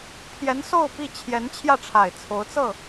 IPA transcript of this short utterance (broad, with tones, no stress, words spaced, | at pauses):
pʰjɛ˧˥n so˥˧ʊ̯pi˥˩ t͡ɕʰjɛ˧˥n t͡ɕʰjä˥˩ʈ͡ʂʰa˨˩ɪ̯ t͡sʰo˧˥ʊ̯t͡sɤ˥˩